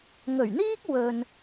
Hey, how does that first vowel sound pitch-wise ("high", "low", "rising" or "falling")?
low